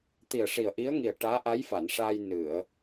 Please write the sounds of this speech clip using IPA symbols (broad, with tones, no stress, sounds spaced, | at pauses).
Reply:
t̪ i˨˩ ə̯ ʂ i˨˩ ə̯ ʔ i˧˥ ə̯ ŋ i˨˩ ə̯ ʈ aː˧˥ ʔ a˧˥ j f a˨˩˨ n ʂ aː˧ j n ɨ˨˩˨ ə̯